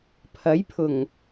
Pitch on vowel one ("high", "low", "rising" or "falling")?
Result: rising